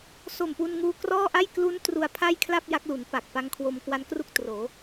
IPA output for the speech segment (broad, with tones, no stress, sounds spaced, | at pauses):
s o˨˩ m p u˧ n ŋ uː˧ k r ɔː˥˩ ʔ a˥˩ j k l u˦˥ n t r u˧ a̯ pʰ a˥˩ j kʰ l a˥˩ p̚ j a˦˥ k̚ l u˩˦ n p a˨˩ k̚ p a˦˥ ŋ kʰ w o˧ m k w a˦˥ n k r u˥˩ k̚ t r oː˩˦